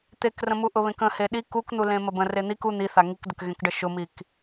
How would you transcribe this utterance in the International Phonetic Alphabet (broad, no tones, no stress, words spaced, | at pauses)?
t̪ekrə̃mu ʔʊβẽkə̃ heɗi kukn̪ulẽ məbə̃ ren̪ik u n̪iθa ŋikdəkɣẽkɖə ʃʊmik